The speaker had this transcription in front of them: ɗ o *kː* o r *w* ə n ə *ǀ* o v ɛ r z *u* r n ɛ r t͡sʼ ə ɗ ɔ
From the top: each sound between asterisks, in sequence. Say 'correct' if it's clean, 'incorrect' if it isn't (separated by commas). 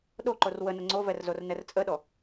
incorrect, correct, incorrect, incorrect